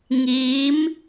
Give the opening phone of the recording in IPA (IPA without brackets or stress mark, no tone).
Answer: ŋ